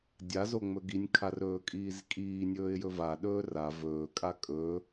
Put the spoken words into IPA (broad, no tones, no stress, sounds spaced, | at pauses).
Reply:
dʲ a z o ŋ͡m ɵ ɡ i nʲ kʰ a r ɵː kʼ iː z kʼ iː nʲ ɵː ɪ̯ j ɵ v a ɗ ɵː r a v ɵː kʼ a kʼ ɵ